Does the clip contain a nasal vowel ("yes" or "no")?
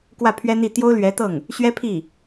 no